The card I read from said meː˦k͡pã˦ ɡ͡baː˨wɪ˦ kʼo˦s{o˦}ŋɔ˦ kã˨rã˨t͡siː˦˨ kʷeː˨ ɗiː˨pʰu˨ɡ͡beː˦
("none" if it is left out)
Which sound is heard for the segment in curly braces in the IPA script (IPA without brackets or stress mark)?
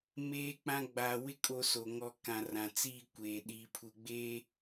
o˨